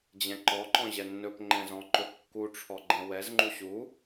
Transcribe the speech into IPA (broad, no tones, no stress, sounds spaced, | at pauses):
d͡ʑ ɛ̃ ǃ ɔ ǃ ɔ̃ ʑ ɛ nː ɵ p ŋ͡ǃ ɛ̃ z ɔ̃ ǃ ɵ p kː u ʈ͡ʂʰ ɔ ɡ͡ǃ ɛ̃ w ɛ z ŋ͡ǃ u ɕ u